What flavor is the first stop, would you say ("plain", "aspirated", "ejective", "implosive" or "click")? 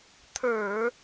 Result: aspirated